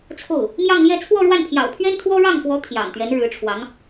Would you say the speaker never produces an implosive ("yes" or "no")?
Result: yes